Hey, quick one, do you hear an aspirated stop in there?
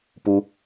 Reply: no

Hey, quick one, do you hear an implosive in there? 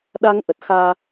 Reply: yes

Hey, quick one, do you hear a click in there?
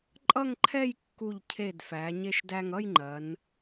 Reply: yes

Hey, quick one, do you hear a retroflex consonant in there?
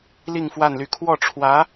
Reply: yes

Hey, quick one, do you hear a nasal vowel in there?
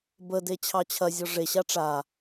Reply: no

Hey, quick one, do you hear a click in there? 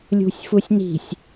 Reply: no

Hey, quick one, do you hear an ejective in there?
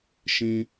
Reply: no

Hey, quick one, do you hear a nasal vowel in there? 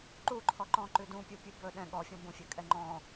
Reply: yes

